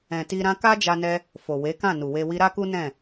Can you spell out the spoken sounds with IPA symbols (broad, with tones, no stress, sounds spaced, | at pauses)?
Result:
ɛ̃˨ t i˧ ɾ ã˦ k a˦ d͡ʒ a˧ n ɛ˧ | f o˨ w e˨˦ k ã˦˨ n u˨ w e˧ w i˧ ɾ a˦ k u˦ n ɛ̃˦˨